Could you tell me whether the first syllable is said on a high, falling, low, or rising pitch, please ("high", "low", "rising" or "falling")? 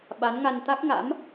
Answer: rising